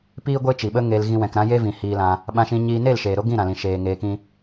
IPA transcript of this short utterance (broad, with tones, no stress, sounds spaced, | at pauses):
p iː˦ ɡʷ e˦ t͡ʃ i˨ ɓ ə˦ ŋ e˧ l ɣ ĩ˧ w ɛ̃˨ k ɾ ã˦ j e˦ v ĩ˨ h iː˧ l ã˧ | ɓ ã˧ ʃ ĩ˧ ɲ iː˧ n e˦˨ l ʃ eː˨ ɾ o˦ ɡ ĩ˦˨ ɾ ã˨ l ĩ˨ ʃ eː˨ ŋ eː˧ k ĩ˦